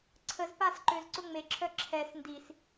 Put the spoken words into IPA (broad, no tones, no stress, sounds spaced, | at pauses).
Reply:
ǀʰ ə z p a s ǃ ø z ǀ ʊ ŋ͡m e ǁʰ œ ǁʰ ɛ s n d i s